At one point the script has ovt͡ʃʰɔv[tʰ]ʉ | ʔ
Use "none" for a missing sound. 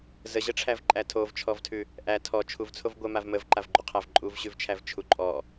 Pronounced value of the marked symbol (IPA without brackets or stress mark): tʰ